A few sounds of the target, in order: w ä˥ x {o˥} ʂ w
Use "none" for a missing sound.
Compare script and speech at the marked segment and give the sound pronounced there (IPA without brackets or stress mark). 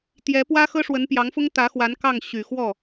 ɤ˥